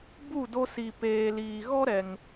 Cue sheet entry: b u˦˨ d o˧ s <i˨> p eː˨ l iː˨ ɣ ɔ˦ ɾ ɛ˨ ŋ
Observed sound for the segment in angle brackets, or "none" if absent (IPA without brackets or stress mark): i˨